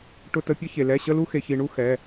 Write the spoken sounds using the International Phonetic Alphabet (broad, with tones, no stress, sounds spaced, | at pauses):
ʈ ʊ˧˥˧ t ə˧˥˧ pʲ ə˥ ç e˧ l ɛ˧˥˧ ɕ ə˥ l u˥ x e˧ ç i˧ ɳ u˥ x ɛ˧˥˧